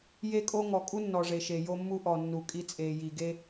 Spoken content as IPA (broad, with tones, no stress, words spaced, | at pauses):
je˦kʼo˦ ŋɔ˨kʼu˦ nːɔ˨ʐe˨ʃe˨ jo˦mːu˦ ʔɔ˨nːu˨ kʼi˦t͡sʼeː˨ ji˨ɡe˦